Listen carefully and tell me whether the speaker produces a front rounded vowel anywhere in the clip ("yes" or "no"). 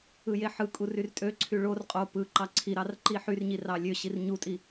yes